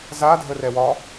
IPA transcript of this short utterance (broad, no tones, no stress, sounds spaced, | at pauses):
z a dʱ ə r ɛ w ɒ